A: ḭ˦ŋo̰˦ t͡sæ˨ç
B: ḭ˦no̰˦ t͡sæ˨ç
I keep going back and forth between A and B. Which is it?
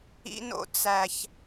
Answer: B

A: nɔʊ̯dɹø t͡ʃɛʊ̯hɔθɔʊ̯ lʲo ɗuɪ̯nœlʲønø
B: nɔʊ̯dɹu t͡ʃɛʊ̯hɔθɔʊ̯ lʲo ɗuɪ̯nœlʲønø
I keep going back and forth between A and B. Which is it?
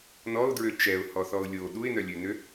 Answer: A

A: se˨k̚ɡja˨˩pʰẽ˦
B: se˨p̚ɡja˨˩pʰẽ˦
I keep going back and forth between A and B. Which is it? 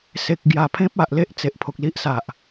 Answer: A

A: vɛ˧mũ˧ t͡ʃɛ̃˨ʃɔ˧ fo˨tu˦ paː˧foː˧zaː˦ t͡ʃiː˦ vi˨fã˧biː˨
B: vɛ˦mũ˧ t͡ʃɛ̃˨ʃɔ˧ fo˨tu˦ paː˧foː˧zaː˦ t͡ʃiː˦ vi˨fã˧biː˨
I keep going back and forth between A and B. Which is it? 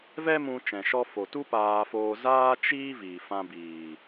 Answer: B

